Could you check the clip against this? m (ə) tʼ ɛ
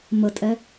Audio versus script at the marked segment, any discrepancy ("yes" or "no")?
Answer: no